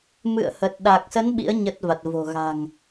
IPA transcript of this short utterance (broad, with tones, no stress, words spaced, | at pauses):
mɨ̰˧˨ə̯hə˨˩t̚ɗa˨˩k̚sə˨˦n ɓḭ˧˥ə̯ ɲə˦˥t̚va˨˩t̚vo̤˨˩ɣa̤˨˩ŋ